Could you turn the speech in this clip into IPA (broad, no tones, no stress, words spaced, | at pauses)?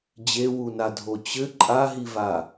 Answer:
d͡ʑewunadʱo t͡ɕɘ ǃʼaɦiva